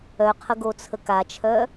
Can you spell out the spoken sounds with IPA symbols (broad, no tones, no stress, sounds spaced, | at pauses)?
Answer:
œ qʰ ə ɡ o t͡sʰ ə k a t͡ʃʰ œ